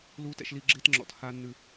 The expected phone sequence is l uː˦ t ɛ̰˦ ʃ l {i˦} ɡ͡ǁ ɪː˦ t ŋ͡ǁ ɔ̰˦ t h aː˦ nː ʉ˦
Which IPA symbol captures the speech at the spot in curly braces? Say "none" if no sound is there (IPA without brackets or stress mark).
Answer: i˦